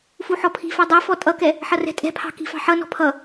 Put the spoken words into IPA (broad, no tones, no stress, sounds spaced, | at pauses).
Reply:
f u ħ ɔ pʰ i̤ f æ dˤ ɛ f ɔ tʼ ʌ k ɛ | ħ ʌ r ɛ̤ tʼ ɛ̤ pʰ ɑ̤ k i̤ f ɑ̤ ħ ʌ n ɔ̤ pʰ ʌ